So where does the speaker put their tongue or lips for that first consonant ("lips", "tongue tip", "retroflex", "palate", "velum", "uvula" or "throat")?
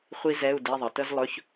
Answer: uvula